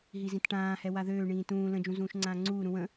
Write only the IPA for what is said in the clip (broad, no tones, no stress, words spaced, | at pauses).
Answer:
ɦizĩtʈãːhɛ waðøːɳĩː tũː lə̃d͡ʒũ zũːʃŋ͡ǀãːŋ͡ǀuːɾũ wə̃